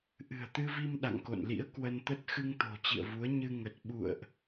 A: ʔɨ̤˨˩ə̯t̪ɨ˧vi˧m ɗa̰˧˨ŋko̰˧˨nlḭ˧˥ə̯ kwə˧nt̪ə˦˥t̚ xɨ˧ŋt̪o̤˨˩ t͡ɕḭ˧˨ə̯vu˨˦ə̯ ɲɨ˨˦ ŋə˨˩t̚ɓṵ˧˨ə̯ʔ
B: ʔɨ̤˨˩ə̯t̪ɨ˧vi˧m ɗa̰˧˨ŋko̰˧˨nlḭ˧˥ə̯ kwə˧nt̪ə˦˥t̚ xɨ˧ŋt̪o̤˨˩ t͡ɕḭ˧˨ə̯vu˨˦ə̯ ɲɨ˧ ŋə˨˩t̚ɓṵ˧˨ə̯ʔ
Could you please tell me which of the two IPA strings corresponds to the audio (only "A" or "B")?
B